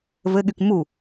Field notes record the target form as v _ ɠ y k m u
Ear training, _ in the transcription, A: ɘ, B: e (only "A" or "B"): A